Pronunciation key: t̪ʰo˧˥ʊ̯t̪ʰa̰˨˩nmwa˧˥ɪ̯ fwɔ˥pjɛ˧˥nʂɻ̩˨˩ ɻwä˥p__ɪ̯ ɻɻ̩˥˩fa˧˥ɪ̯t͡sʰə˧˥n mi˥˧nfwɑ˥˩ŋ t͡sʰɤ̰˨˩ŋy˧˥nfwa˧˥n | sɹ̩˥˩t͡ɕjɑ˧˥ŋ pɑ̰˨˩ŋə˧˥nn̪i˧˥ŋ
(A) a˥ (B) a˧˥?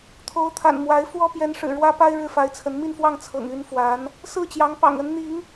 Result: A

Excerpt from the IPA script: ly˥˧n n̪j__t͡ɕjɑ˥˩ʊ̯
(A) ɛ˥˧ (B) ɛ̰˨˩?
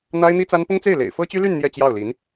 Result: A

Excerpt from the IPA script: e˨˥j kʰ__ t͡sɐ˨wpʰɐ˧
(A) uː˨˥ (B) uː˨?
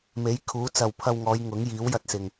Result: A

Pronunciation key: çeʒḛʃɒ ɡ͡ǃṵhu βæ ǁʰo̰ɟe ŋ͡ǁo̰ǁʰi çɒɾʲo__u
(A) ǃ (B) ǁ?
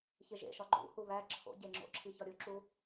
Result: B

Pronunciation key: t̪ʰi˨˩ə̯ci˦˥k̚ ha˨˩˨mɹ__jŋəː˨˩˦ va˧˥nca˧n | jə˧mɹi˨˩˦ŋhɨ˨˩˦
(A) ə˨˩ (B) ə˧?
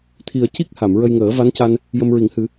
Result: B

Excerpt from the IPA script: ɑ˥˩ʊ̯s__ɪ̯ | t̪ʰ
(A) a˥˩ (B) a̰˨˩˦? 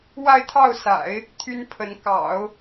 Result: B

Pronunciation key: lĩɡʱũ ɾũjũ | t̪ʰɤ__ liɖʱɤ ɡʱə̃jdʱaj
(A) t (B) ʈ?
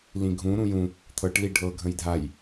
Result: B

